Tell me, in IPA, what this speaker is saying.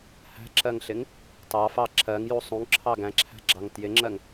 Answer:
h æ̤ ǁ ɜ ŋ ɬ ɪ ŋ | t ɑ f ɑ ǁʰ ɜ ŋ j u sˤ ũ ŋ ǁʰ ɑ ɡ æ̃ ǁʰ æ̤ ɡ͡ǁ ɑ ŋ t j ɪ ŋ͡ǁ ɜ ŋ

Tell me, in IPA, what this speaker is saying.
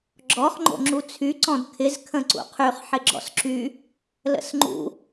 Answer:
ɡ͡ǁ ɔ χ ŋ͡ǃ o̰ ŋ͡ǁ u t͡sʰ y ǀ ɔ̃ d kʰ ɪ z kʰ ə̃ ǀ ṵ qʰ y χ ħ ɪ ɡ͡ǁ ɔ̰ s ǁ y | l ə̰ s ŋ͡ǃ ṵ

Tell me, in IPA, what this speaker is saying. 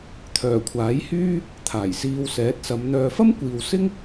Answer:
t̪ʰ œː˨˩ kʷʰ aː˨˥ j h yː˥ | t̪ʰ aː˨˩ j s iː˧ w s ɛː˨˥ t̚ s ɐ˨˧ m n̪ œː˨ f ɐ˥ m kʷ iː˨ w s ɪ˥ ŋ

